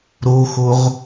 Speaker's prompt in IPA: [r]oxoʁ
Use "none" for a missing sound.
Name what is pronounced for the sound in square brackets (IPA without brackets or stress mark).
ɾ